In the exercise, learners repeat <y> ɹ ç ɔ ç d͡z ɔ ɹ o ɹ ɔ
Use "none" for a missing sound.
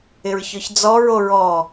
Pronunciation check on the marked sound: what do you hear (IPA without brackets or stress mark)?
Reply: ɪ